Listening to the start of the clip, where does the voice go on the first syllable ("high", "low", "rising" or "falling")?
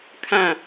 falling